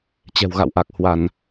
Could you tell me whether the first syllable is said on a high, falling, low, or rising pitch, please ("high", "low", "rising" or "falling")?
low